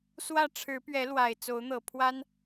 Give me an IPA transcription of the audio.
s w ä˥˨ ʈ͡ʂʰ ɻ̩˨˦ p ɥ ɛ˨˦ l w a˨˩ ɪ̯ t͡s o˨˦ ʊ̯ n̪ ɤ˨˩ pʰ w a˦ n

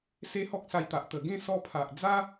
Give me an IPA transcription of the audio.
s e˦ h ɔ˦ k̚ s a˧ j t̪ a˨ ʔ t̪ ə˨˩ ɡ ẽ˥˧ s ɔ˧ pʰ a˨ ʔ d͡z a˦

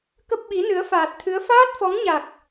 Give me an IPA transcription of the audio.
k ə˦˥ p̚ ɓ i˨˦ n ɨ˨˦ ə̯ f aː˨˩ t̚ t̪ʰ ɨ˨˦ ə̯ f aː˦˥ t̚ f ɔ˨˦ ŋ ɲ a˨˩ k̚

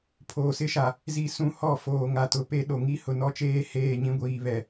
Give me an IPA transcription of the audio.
pʰ oː˨ s ɪ˦ ʃ a˨ | z i˨ s ũ˨ h ɔ˦˨ f oː˨ ŋ a˨ t ʊ˨ p e˦ ɗ o˨ ŋ i˦ h ʊ˨ n ɔ˦ t͡ʃ eː˦ h eː˦˨ ɲ ĩ˦ ɡʷ iː˨ β ɛ˨

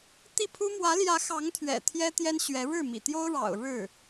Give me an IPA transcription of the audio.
t̪ i˥˩ pʰ u˥ m w ä˧˥ l j ä˧˥ x ɑ˧˥ ŋ t̪ʰ ɥ ɛ̰˨˩ t̪ʰ j ɛ˥ t̪ j ɛ˥ n ɕ ɥ ɛ˧˥ ɻ ɻ̩˥˩ m ḭ˨˩ t̪ j o˥ ʊ̯ ɻ ɑ̰˨˩ ʊ̯ ɻ ɻ̩˥˩

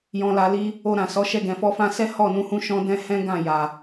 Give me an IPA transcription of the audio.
j ɔ̃˧ l a˧ l i˦ | o˧ ɾ ã˨ s ɔ˨˦ ʃ ɛ˧ ɡ ɛ̃˨ f ɔ˧ f ã˧ s ɛ˦ h ɔ˦˨ n ũ˧ h ũ˧ ʃ ɔ̃˧ d ɛ̃˧ h ɛ̃˦ ɡ ã˦˨ j a˨

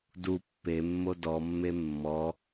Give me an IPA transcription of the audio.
d u pː e mː o d ɔ mː e mː ɔ

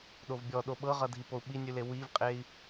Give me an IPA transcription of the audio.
ɗ o v bʲ ɔ ɗ o ɓ ɤ ʁ ʌ dʱ i p o u̯ ɓ i nʲ ʉ l e w i v qʼ e i̯

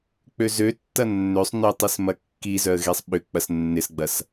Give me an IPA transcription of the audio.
k͡p ø z ø tː ɐ nː ø sˤ n ø tˤ i s m ɐ kː i z œ ə̯ ɣ e sˤ ɓ ʏ k͡p ɐ s nː ɪ s ɡ͡b ɐ s

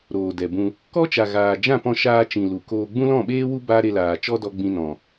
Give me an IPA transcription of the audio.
ɾ oː˨ d ɛ˨ b ũ˧ | k ɔ˦ t͡ʃ a˨ ɣ aː˨ d͡ʒ ã˦˨ p ɔ̃˧ ʃ aː˧ t͡ʃ ĩ˨ l u˨ k oː˧ ɡ͡b ũ˦ l ɔ̃˦˨ ɓ eː˦ w u˦ b aː˦ ɾ e˧ l aː˨ t͡ʃ ɔ˦ d ɔ˧ ɡ͡b ĩ˧ n ɔ̃˨

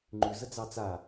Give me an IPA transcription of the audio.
ŋ͡ǃ ʉ z ə d͡z ɑ t͡s a

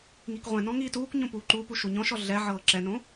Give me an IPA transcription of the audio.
ŋ i k ʁʷ ɛ̃ n ɔ̃ ŋ iː t uː k ɲ õ p uː ǃ u p u ʃ u ɲ ɔ̃ ʃ ɔ ɮ ɛ ʕ ɤː ǁ ɛ n õ

